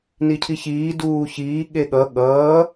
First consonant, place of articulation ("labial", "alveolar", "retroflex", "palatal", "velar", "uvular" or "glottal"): alveolar